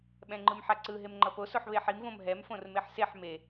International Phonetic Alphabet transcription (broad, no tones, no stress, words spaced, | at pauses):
ɓɛ̃ŋ͡ǃɯmħaǀɯ ɦemŋ͡ǃʌpo soħβeħim võmɦɛm fõrmeħseħ me